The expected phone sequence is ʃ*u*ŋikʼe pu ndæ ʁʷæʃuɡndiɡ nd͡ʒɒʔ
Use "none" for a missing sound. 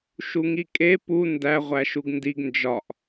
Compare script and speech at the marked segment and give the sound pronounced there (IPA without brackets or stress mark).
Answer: u